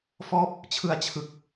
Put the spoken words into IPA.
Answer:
f ɔː˦˥ p̚ | t͡ɕʰ ɯ˧ a̯ t͡ɕʰ ɯ˨˩ k̚

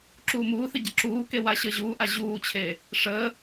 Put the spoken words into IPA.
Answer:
ǁ uː m uː θ ɪ ɟ ə ǁ uː k e w a ɕ əː ʑ uː ʔ a ʑ uː t͡ɕʰ e | ʂ əː

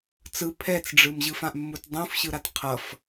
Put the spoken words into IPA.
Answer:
t͡s ɯ pʰ ɛ t͡s ɖ͡ʐ ɯ m ʑ ɯ f ã ʔ mː u t dˤ ũ f ɕ ɯ ɾ a t qʰ ʌ f

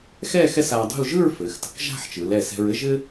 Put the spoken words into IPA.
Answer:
x ɛ˥˧ x ɛ˥ s a˧ dˤ ṳ˥˧ l ʒ ɯ˥˧ ɹ f ɘ˩˧ x t ə̤˩˧ k ʒ a̤˥˧ ħ t͡ʃ ɯ˩˧ l ɛ˧˩ s ɛ̤˧ ɹ ɘ˥ ʒ ɘ˥

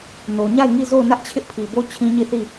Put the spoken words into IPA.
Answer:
n o˨ ɲ a˦˨ ɪ̯ ŋ i˦˨ z o˦˨ ʊ̯ n ä˦ ʔ t͡ɕʰ ɪ˦ ʔ pʰ i˨ b o˦ t͡ɕʰ ĩ˦ ɲ i˦˨ θ i˦˨

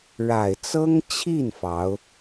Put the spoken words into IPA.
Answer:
ɻ a˨˩ ɪ̯ t͡s ɤ˥ ŋ t͡ɕʰ i˥˩ n f ɑ˧˥ ʊ̯

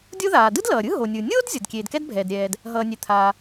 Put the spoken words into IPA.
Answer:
dʲ o˥ ð aː˩ d ɯ˥ d l ʌː˩ ɾʲ ɯ˥ ɦ o˩ nʲ ɯ˩ nʲ oː˥ d zʲ ʌ˩ d kʲ eː˩ d k ɛ˥ d bʱ ɛː˩ d ɾʲ ɛː˩ d | ɦ ʌː˩ nʲ e˩ t̪ʰ aː˩

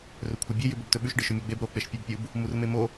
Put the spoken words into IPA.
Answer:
r ɵ kʷʰ ɐ bʲ e j ʉ b o b t ɵ ɓ ʉ ʃ ɖ ɨ ʃ ɵ mʲ u ɡ͡b e b ɾ o k͡p e ʃ pʲ ɐ b pʲ u b | m u r m e m o

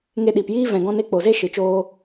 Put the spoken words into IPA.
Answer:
ŋ e˧ ɗ i˨ p j iː˦ v ɛ̃˨ ɡ ɔ̃˧ n e˦ k͡p o˨ z e˦ ʃ ɨ˨ t͡ʃ oː˦

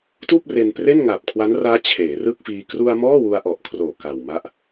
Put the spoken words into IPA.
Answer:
t uː˥˩ p̚ r e˧ n p r e˥˩ n ŋ a˨˩ p̚ kʰ w a˦˥ n r aː˦˥ t͡ɕʰ eː˩˦ r ɯ˥˩ k̚ f iː˧ k r u˧ a̯ m ɔː˥˩ w u˧ a̯ ʔ ɔ˨˩ ʔ kʰ r oː˨˩ k a˨˩ w m a˦˥ ʔ

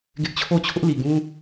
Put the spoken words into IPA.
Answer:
ɡ ɪ˦ ʔ t͡ɕʰ o˦˨ ʊ̯ t͡ɕʰ ʊ˦ ʔ l i˨ ɡ ũ˦

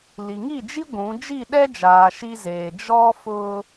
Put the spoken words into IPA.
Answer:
l i˨ ŋ i˦˨ d͡ʒ i˦ ɡʷ ũ˨˦ d͡ʒ i˦˨ ɗ ɛ˦ d͡ʒ aː˨ ʃ i˦ z eː˨ d͡ʒ ɔ˦ f ʊ˦

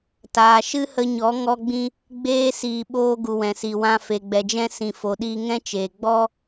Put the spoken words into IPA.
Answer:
t aː˨ ʃ ɨ˦ h ə˧ ɲ ɔ˨˦ ŋ ɔ˦ ɡ͡b ĩ˦ | ɡ͡b eː˧ s iː˨ ɓ oː˧ ɡ u˨ w ɛ̃˨ s i˨ w ã˧ f e˨ ɡ͡b ɛ˨ d͡ʒ ɛ̃˦ s ĩ˨ f o˨ ɗ iː˧ ŋ ɛ̃˦ t͡ʃ eː˨ ɡ͡b ɔ˦

